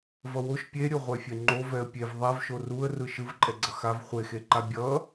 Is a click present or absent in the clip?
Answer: present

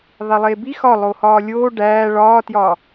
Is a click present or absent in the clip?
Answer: absent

